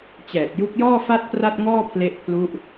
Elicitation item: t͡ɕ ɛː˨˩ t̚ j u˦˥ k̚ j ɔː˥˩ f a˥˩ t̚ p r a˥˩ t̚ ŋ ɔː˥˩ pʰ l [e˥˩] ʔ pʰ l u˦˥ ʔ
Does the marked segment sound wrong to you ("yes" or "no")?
yes